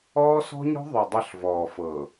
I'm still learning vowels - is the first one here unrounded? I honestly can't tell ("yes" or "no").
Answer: no